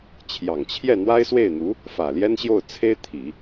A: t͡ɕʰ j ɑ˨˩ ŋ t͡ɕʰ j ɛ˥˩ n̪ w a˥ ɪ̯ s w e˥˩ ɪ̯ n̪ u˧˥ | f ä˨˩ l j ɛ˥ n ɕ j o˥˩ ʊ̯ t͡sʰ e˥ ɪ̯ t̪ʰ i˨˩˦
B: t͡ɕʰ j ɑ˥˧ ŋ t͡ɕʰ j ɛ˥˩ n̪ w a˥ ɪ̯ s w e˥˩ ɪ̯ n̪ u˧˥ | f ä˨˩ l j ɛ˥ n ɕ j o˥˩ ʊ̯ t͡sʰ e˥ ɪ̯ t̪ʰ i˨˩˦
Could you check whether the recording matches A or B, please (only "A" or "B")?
A